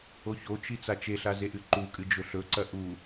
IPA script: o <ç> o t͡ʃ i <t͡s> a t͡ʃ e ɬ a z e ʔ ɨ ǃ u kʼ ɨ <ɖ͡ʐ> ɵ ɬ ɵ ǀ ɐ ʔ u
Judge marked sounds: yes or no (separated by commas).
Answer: yes, yes, no